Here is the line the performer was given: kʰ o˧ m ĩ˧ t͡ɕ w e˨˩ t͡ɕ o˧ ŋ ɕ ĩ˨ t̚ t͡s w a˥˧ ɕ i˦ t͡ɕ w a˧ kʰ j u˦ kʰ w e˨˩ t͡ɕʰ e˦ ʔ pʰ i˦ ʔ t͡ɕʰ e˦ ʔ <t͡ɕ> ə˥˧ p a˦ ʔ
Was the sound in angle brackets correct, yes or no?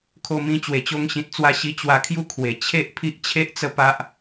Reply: no